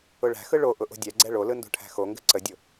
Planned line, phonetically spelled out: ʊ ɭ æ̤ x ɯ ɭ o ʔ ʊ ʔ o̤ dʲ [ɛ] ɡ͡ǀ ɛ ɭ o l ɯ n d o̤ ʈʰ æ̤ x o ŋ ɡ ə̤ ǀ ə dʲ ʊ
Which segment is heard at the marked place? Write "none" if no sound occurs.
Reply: ɛ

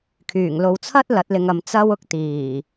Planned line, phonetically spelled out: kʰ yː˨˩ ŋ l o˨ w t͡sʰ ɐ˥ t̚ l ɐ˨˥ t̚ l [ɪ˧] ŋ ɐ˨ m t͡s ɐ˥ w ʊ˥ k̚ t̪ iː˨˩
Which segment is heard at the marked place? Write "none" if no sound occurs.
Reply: ɪ˧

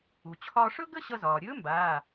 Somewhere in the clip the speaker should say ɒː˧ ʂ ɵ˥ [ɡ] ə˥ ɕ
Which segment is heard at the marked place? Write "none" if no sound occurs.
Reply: ɡ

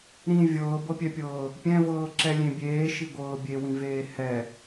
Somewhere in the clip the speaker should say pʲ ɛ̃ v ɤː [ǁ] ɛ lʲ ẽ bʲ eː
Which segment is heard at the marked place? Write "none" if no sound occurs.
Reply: ǁ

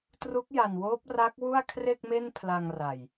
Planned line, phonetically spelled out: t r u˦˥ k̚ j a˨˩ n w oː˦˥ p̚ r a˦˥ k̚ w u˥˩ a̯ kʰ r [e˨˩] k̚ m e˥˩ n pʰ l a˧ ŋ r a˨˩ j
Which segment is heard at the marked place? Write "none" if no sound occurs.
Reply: e˥˩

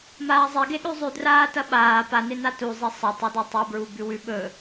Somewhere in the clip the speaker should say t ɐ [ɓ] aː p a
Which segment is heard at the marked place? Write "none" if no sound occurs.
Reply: ɓ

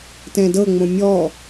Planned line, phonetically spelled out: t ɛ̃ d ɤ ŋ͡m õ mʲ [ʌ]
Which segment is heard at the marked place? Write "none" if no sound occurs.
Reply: ɔ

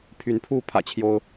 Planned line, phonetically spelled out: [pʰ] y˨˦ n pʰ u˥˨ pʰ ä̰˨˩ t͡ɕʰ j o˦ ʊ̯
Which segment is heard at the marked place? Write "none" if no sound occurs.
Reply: pʰ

